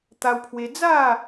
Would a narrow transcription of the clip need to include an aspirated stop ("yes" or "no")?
yes